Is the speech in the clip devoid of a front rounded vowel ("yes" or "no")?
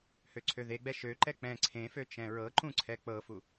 no